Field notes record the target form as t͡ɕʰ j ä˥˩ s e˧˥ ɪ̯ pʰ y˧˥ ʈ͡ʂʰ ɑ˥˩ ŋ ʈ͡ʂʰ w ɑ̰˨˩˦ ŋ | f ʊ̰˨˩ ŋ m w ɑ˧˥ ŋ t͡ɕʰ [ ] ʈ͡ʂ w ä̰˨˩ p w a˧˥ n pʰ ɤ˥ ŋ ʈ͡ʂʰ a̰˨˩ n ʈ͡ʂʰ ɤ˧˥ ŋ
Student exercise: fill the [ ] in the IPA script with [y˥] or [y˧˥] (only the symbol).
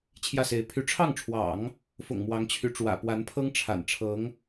y˧˥